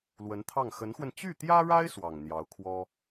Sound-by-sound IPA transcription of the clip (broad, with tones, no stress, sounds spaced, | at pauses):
l w ə˧˥ n t̪ʰ ɑ˥˩ ŋ x ə˧˥ n x w ə˧ n t͡ɕ y˥˩ t̪ j ä˥ ɻ a˥ ɪ̯ s w ɑ˨˩ ŋ n̪ j ɑ˧˥ ʊ̯ kʰ w ɔ˥